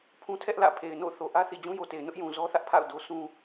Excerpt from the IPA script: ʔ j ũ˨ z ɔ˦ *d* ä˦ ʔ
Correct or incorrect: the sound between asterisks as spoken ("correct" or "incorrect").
incorrect